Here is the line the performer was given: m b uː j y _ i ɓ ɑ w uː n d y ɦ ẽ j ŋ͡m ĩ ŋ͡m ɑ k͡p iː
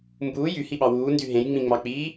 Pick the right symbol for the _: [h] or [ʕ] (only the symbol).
h